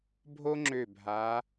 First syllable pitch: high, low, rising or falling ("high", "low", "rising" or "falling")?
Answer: high